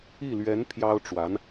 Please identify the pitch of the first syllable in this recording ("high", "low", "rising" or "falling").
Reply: falling